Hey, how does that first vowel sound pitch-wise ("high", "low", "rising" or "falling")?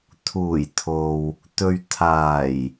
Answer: low